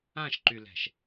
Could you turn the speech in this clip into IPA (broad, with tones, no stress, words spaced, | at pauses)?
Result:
ã˦˨ʃǃy˨lɛ̤˨ʃ